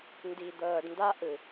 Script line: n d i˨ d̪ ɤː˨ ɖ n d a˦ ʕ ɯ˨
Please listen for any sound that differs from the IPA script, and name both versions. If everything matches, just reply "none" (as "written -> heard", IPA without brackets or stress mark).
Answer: ʕ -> ʔ